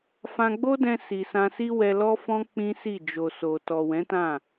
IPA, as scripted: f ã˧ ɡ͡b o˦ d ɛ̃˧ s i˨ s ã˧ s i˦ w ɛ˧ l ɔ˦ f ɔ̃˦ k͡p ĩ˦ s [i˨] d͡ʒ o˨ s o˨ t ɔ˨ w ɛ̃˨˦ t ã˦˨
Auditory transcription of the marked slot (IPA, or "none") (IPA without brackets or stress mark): i˦˨